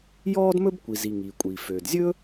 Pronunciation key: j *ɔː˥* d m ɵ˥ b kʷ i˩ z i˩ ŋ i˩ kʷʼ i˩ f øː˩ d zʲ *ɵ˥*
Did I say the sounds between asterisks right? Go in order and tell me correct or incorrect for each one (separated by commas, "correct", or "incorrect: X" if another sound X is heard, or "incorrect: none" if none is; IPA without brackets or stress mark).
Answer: correct, correct